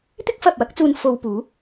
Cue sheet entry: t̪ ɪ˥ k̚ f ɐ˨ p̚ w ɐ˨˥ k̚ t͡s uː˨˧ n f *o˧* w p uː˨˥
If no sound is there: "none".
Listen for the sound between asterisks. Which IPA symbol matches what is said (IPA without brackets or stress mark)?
o˧